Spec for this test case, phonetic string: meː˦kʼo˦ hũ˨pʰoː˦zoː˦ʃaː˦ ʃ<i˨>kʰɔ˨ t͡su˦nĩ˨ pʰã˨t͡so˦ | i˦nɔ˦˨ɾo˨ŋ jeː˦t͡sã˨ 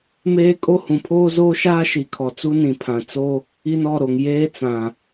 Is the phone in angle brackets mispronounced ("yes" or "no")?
no